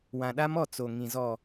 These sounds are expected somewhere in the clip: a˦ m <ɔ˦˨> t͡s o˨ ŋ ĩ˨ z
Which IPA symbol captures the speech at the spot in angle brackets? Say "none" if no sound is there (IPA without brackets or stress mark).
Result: ɔ˦˨